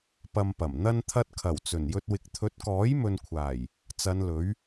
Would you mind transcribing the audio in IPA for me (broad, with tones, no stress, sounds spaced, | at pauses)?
p ɐ˨ m p ɐ˨˩ m n̪ ɐ˧ n t̪ʰ ɐ˧ t̚ kʰ ɐ˨˩ w t͡s ɵ˨˩ n j ɵ˧ t̚ w ɪ˨˥ k̚ t̪ʰ ɵ˨˥ t̚ k ɔː˨˥ j m ɵ˨ n kʷʰ aː˨˩ j | t͡s ɐ˨˧ n l ɵ˨˥ ɥ